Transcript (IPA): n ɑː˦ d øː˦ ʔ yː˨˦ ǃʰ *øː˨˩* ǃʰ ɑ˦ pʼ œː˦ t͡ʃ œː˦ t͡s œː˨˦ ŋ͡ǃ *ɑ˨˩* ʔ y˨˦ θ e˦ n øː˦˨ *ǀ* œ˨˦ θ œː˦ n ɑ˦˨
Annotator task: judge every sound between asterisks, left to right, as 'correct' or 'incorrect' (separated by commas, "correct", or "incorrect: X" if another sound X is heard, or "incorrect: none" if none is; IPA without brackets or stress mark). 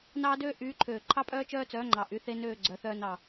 correct, correct, incorrect: ɡ͡ǀ